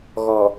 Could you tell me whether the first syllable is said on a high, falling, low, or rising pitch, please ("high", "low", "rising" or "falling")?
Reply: low